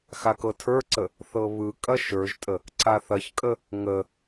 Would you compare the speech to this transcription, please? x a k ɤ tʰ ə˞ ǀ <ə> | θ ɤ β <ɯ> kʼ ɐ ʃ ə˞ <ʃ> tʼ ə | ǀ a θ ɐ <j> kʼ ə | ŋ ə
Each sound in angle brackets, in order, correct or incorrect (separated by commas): correct, correct, incorrect, incorrect